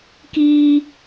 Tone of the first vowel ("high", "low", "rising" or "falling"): high